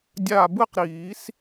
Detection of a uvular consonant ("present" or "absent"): present